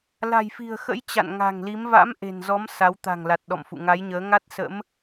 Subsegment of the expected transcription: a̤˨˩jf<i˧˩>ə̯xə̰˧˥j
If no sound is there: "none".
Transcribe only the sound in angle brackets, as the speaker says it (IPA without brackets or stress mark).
i̤˨˩